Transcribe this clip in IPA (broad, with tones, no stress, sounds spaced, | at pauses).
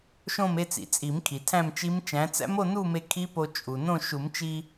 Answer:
ʃ õ˥˧ m e˥˧ t͡s ḭ˩ t͡sʼ i˨˩˦ m kʰ i˩ tʰ æ̃˥˧ m t͡ʃ i˦˥ m t͡ʃ æ̃˨˥ t͡s æ̰˦˥ m o˥˧ n u˥˧ m e˧ kʰ i˦˥ p o˧ t͡ʃʼ u˩ n õ˥˧ ʃ u˨˩˦ m t͡ʃ i˧